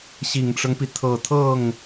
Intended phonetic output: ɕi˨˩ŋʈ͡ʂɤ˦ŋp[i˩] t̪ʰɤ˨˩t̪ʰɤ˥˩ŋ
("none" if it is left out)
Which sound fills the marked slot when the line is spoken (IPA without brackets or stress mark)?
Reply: i˩